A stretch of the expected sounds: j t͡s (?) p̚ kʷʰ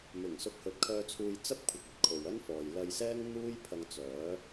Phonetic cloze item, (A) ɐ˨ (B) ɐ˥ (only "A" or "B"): B